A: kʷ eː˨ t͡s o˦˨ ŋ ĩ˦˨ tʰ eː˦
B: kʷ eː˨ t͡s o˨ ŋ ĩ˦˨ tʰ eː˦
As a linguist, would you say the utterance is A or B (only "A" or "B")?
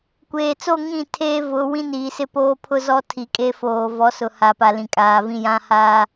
A